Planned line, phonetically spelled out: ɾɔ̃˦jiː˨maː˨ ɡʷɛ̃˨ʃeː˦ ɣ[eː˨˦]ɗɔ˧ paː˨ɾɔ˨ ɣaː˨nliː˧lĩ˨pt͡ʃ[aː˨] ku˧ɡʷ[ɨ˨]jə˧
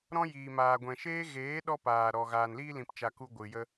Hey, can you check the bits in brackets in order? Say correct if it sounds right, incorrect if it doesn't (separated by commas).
correct, incorrect, correct